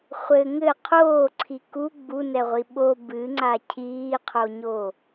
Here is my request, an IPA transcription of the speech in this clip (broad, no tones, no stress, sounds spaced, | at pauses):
χʷ ɘ ŋ ɘ qʰ oː ǀʰ i k u ɡ͡b u n ɛ ʁʷ i ɓ o b ɨ ŋ͡ǀ a cʰ iː qʰ o ɲ o